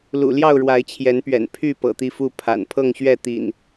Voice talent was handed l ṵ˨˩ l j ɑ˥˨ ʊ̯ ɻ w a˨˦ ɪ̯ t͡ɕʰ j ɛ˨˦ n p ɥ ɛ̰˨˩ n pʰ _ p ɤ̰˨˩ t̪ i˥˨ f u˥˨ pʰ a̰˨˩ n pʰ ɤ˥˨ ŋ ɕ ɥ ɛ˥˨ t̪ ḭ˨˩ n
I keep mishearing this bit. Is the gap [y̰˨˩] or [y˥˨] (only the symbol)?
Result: y˥˨